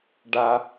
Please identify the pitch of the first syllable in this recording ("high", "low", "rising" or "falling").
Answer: high